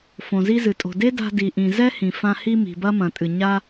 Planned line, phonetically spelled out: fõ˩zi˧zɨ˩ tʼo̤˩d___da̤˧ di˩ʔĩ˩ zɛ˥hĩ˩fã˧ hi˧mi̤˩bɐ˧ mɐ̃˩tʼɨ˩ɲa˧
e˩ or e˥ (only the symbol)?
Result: e˥